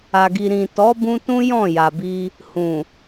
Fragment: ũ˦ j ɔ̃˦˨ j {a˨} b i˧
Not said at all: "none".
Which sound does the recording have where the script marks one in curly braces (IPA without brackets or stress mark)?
a˨